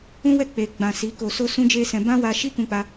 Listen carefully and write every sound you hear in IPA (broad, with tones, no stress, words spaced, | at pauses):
ũ˦wɛ˦˨ k͡pe˨ɡ͡bã˨ si˨˦ko˧so˦ sũ˦d͡ʒe˦sɛ̃˧ bã˦wa˧ʃi˦ kũ˧k͡pa˧